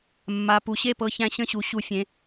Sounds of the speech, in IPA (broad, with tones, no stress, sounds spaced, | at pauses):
mː a˩˧˩ p u˩˧ ɕ e˥˩ p ɤ˧ ç æ̃˧ ɕ ə̃˥˩ ɕ u˩˧ ɕ u˧˩˧ fʲ ẽ˩˥